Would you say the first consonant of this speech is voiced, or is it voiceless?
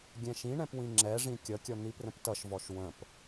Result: voiced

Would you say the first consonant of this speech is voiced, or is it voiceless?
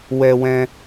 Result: voiced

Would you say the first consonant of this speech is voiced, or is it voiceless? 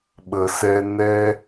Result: voiced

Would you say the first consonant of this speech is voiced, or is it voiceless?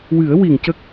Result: voiced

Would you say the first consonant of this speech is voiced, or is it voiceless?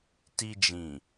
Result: voiceless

